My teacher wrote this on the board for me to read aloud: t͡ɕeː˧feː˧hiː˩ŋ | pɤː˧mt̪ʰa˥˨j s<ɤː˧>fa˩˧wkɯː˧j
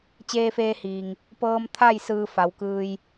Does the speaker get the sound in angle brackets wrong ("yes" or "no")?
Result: yes